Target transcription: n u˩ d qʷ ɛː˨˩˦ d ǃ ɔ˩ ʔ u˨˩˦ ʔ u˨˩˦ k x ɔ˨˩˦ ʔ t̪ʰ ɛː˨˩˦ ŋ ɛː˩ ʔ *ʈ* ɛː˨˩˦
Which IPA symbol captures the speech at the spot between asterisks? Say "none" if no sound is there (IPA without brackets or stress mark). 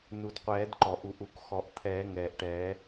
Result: ʈ